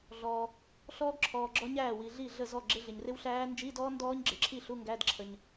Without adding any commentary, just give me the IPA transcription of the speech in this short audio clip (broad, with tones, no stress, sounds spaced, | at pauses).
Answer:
ɮ ɔː˨ | ɬ ɔː˦˥ ɡ ǁʰ ɔː˨ ɡ͡ǁ ɔ˦˥ ɲ æː˥˩ w i˨ ɮ i˥˩ ɮ ə˥˩ z ɔ˥˩ ɡ͡ǁ ɪ˧˥˧ ɮ ɪ˨ ɲ r ɪ˦˥ w ɬ æː˦˥ n d͡ʒ i˧˥˧ d ɔː˦˥ n d ɔː˦˥ ɲ ɡ͡ǁ ɪ˨ ǁʰ i˥˩ ɬ u˧˥˧ ŋ ɡ æ˧˥˧ d ǁʰ ə˨ ɲ